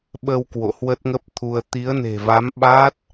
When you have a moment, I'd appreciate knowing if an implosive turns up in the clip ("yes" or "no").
yes